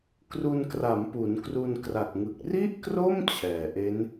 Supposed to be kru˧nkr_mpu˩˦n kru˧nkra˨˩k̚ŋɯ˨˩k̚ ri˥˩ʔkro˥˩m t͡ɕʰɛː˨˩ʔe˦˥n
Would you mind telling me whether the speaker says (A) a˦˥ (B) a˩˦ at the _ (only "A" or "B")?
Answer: B